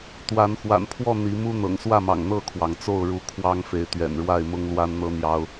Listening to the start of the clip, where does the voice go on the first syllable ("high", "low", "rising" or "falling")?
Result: rising